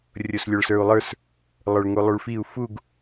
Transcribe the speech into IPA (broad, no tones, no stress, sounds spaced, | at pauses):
rʲ o s lʲ o ɭ s ə˞ u̯ lˠ ə˞ s | lˠ ə˞ ɭ ŋ u lˠ u ɭ f i u̯ f u ɡ